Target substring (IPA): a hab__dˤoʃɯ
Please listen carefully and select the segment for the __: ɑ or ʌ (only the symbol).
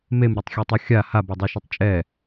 ʌ